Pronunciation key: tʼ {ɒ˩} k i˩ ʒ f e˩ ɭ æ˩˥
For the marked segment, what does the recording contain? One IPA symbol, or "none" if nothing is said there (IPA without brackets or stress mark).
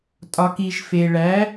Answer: ɒ˩